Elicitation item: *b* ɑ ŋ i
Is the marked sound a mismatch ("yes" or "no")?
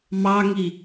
yes